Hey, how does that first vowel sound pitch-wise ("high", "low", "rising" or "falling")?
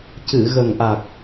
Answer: low